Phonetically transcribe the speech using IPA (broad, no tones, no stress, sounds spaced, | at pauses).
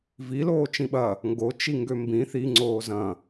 v i l oː t͡ʃ ĩ ɓ ɐ | ŋ ɡ o t͡ʃ i ŋ ɡ ø m b ĩ θ i ŋ͡ǀ oː z ɐ̃